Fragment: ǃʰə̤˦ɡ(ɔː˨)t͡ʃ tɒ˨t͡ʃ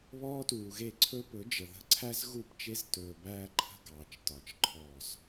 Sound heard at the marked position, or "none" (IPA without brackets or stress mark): ɑː˨